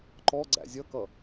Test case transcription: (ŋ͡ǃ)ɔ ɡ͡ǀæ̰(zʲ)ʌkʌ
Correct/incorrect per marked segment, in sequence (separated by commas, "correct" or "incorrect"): incorrect, correct